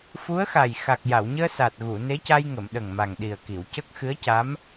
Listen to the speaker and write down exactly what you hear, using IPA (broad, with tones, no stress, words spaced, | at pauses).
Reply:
fu˧˥ə̯xa˨˩j xa˨˩k̚ja˨˩˨wɲəː˧ sa˨˩t̚ɣu˨˩˨ ne˧˥ca˧jŋə˨˩˨m ɗə˨˩ŋma˨˩ŋɗi˨˩ə̯ki˨˩˨w cə˦˥k̚ xɨ˧˥ə̯ca˧˥m